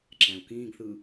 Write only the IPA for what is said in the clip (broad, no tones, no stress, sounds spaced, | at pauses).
ǁ æ̃ u̯ k ĩː ɡ θ ɯ